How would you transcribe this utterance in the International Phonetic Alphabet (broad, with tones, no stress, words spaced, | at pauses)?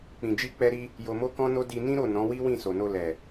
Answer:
k͡pĩ˨d͡ʒi˧k͡pɛ˧ɾi˧ | jo˧mo˦kɔ̃˦no˦ di˧nĩ˦ɾo˦˨ nɔ̃˨˦wi˦wĩ˦˨ so˨no˧ lɛ˨